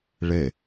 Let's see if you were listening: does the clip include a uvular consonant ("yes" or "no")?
no